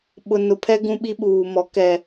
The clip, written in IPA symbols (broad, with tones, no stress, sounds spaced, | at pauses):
ɓ ʊ˨ n ʊ˨ pʰ ɛ˦ ɡ ũ˦ ɓ i˦ ɓ uː˨ m ɔ˨˦ k ɛ˨